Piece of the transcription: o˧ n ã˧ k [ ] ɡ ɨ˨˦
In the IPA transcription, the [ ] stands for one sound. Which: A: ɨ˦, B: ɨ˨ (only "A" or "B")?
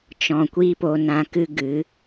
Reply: A